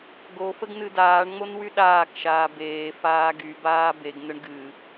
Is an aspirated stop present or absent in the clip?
absent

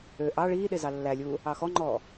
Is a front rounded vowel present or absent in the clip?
present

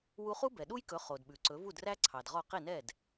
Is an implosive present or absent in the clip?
present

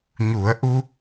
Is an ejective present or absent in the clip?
absent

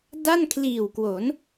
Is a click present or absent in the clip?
absent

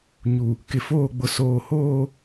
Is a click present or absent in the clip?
absent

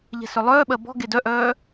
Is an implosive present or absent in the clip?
present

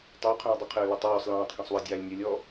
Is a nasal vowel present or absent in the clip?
present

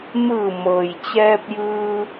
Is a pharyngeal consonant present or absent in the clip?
absent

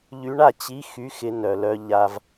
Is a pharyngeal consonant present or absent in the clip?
absent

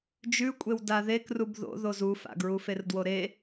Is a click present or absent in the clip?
absent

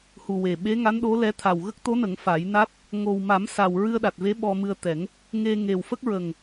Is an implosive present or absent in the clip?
present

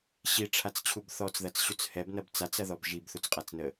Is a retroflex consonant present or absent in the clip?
present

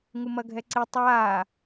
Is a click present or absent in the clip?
present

